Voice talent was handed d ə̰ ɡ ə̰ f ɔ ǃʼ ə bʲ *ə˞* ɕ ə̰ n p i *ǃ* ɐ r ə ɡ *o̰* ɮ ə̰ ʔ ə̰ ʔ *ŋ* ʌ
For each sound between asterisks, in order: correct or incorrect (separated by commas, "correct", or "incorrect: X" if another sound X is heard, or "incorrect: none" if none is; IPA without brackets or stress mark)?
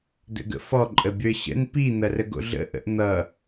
correct, incorrect: n̪, correct, incorrect: n̪